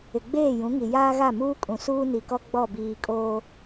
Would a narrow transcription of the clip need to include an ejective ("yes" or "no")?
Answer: yes